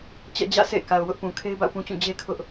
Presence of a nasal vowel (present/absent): present